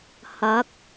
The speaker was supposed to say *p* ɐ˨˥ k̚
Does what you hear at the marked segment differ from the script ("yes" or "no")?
yes